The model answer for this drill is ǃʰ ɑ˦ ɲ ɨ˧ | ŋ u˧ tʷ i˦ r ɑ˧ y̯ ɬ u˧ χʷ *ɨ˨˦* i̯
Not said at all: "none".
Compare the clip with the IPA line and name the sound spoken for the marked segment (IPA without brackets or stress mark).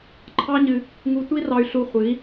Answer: ɨ˨˦